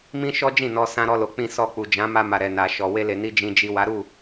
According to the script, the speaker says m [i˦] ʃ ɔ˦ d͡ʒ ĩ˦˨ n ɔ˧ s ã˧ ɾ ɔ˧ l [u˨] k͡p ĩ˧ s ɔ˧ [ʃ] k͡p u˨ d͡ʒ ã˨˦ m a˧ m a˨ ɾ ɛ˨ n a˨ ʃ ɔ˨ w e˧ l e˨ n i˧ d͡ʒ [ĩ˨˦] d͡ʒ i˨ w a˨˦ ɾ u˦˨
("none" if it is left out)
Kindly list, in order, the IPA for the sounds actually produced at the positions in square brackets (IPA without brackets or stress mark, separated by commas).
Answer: ĩ˦, o˨, none, ĩ˨